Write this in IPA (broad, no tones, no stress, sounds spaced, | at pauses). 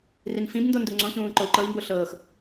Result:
r i n f ĩ b n d o n d u ŋ͡ǀ õ ç ũː ǃ o u̯ ǃ ɤ i̯ m b o ɬ ɤː x